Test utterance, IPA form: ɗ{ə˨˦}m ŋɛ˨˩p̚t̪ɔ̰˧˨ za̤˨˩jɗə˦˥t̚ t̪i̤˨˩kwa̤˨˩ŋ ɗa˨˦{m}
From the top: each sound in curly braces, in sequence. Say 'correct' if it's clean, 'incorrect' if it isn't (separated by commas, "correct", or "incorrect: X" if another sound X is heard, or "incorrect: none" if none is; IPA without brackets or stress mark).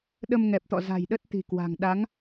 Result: incorrect: ə˧, incorrect: ŋ